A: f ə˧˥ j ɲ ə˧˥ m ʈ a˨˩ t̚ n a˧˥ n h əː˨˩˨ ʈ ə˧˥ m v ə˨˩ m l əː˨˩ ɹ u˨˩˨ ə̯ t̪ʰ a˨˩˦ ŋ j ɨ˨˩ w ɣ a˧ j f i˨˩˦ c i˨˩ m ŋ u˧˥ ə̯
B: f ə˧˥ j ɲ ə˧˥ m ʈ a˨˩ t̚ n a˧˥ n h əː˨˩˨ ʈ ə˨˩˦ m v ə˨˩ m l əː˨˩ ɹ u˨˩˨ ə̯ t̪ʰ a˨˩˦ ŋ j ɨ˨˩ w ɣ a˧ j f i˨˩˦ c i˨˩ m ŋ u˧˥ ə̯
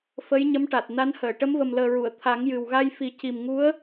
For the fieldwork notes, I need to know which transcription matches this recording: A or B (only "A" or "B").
A